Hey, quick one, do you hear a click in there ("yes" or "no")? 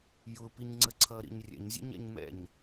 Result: yes